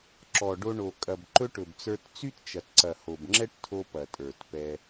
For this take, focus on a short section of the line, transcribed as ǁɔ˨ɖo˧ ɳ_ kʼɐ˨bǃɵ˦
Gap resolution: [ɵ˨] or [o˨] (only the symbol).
o˨